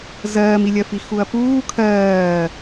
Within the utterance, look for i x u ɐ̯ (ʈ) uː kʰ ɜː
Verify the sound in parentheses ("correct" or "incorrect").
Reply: incorrect